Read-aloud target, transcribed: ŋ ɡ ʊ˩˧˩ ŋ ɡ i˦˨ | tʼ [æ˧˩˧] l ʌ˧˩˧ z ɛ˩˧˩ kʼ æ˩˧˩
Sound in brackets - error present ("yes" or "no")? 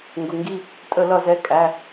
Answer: yes